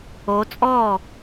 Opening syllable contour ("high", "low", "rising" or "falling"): rising